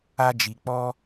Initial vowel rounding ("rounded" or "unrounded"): unrounded